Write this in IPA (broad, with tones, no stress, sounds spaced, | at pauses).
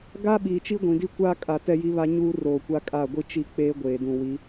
ɡ a˦ ɓ iː˨ t͡ʃ i˦ ɡʷ ĩ˨ d i˦ kʷ aː˦ kʼ a˨ t ɛ˦ j i˦ β a˦ ɲ uː˦ r oː˨ kʷ a˦ kʼ a˦˨ ɡʷ i˦ t͡ʃ i˦ k͡p eː˦ ɡʷ eː˨ d ũ˨ w i˨˦